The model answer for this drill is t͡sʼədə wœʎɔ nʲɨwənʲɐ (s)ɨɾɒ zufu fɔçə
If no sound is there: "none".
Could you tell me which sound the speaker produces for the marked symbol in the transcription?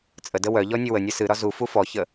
s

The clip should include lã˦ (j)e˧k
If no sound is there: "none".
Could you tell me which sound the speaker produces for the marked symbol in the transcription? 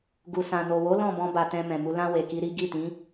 w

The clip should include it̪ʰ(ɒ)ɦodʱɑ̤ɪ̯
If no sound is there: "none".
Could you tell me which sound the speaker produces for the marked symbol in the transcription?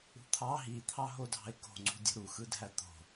ɑ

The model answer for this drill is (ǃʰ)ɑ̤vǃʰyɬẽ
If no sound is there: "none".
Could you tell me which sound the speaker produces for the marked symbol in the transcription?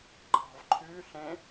ǃ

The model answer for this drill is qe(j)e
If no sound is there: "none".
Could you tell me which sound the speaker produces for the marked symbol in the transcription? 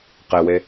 w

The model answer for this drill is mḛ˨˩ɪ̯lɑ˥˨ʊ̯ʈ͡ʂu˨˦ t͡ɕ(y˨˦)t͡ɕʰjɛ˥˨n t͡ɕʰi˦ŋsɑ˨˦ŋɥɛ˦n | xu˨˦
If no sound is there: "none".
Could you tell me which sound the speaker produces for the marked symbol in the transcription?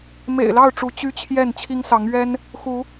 y˦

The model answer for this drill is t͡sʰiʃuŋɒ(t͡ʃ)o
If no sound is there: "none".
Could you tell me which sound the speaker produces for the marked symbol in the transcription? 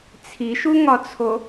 t͡sʰ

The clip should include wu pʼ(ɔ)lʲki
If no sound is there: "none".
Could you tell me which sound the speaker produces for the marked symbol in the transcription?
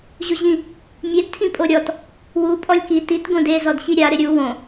ɔ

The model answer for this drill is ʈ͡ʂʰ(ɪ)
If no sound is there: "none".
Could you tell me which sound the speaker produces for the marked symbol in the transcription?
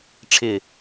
ɪ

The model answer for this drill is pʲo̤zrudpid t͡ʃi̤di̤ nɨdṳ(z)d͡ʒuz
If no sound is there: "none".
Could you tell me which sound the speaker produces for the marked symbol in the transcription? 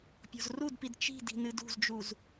z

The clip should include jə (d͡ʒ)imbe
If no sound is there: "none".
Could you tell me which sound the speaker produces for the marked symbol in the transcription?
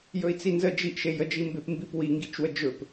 d͡ʒ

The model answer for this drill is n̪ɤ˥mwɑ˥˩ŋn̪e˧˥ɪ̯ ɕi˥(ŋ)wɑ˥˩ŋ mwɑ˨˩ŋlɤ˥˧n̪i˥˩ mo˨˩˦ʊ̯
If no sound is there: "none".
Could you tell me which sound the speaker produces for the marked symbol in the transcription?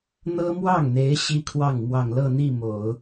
kʰ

